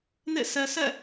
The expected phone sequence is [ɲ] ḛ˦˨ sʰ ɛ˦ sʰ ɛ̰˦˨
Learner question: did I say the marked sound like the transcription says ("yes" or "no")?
no